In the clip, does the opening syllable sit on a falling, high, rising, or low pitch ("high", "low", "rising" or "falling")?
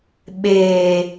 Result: low